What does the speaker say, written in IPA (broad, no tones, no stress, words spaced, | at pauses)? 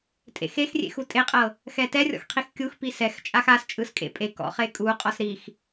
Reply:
tʼḛxexrʲḛx utʼeqʼɤ | xɛtɛrʲɔ̰x qʰixkʲuxpi sɛx t͡ʃʼaxast͡ʃʼɯs kʼḛpʼekɔ̰ χekʼuqʼɔs ɾix